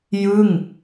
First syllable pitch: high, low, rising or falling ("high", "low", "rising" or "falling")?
falling